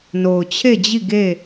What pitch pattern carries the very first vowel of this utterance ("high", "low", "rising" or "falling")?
low